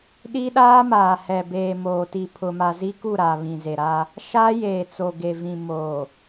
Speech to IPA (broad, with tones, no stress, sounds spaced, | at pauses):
ɗ i˦ ɗ aː˦ m aː˨ h ɛ˨ b eː˨ m oː˨ t i˨ pʰ ʊ˨ m a˨ z i˦ k u˦˨ ɾ a˨ β ĩ˨ z e˨ ɾ a˦ | ʃ a˦ j eː˨ t͡s o˨ ɡ e˨ v ĩ˨ m oː˨